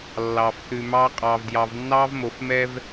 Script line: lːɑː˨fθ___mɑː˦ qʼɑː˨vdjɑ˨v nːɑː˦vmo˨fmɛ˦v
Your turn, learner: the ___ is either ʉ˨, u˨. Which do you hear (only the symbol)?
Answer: ʉ˨